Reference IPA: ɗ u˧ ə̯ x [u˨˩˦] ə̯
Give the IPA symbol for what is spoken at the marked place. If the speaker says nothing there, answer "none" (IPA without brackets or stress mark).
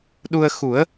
u˨˩˦